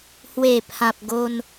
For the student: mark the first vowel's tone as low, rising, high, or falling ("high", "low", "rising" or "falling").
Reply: low